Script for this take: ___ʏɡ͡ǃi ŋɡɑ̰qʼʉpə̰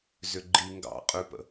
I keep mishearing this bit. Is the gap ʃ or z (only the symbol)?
z